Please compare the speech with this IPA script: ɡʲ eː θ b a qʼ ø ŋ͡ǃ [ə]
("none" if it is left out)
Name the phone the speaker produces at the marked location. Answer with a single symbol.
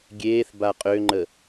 ə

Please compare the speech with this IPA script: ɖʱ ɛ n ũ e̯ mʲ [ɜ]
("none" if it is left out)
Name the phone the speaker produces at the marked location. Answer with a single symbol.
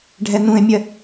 ɜ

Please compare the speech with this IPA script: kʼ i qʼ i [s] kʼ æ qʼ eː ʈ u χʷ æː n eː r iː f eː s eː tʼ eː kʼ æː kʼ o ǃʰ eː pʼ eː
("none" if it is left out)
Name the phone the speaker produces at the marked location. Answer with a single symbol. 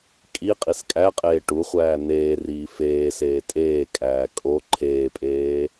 s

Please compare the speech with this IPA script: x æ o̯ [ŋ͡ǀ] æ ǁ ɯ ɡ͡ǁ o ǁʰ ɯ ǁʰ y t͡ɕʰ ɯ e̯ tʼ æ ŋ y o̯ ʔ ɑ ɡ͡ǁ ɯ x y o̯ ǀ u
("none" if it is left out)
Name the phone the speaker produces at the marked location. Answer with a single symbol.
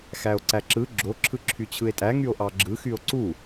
ǀ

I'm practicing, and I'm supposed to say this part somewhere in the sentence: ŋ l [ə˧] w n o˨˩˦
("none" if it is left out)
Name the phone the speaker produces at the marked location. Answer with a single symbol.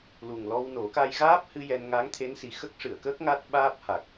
ɔ˧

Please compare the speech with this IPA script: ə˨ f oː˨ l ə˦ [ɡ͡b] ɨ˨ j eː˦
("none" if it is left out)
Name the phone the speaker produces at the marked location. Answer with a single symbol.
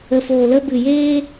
b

